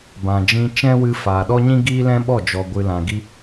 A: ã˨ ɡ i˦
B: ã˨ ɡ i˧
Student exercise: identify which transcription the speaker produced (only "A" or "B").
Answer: B